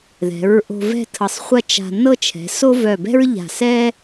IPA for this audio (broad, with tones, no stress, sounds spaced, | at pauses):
ð ɛ̤˩˧ ɹ ʔ o̤˧ v ɛ̤˥˧ tʰ ɤ˧˩ sˤ χʷ ɐ˥˧ t͡ʃ a̤˧ n ɤ˥˧ t͡ʃʰ ɛ̤˩˧ s o˥ v œ˧˩ b ɛ̤˥ ɹ ʎ a̤˧˩ s ɛ˥